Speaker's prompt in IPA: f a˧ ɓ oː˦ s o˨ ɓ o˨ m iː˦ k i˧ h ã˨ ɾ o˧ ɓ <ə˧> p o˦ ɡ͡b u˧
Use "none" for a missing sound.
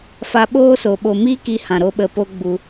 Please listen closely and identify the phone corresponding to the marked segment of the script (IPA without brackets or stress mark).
ə˧